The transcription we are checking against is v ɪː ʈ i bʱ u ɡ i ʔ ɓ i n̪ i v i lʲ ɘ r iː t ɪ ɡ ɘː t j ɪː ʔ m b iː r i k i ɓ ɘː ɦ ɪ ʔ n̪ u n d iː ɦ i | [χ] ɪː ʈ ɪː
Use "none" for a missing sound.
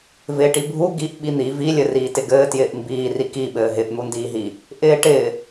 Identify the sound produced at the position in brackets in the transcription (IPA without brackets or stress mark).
ʔ